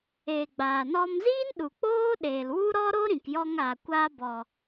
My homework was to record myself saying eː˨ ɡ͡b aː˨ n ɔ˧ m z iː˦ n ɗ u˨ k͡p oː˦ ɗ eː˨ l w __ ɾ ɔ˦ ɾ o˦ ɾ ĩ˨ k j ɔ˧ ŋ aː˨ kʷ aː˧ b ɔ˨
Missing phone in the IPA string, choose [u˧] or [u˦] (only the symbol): u˦